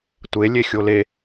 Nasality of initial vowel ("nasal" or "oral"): oral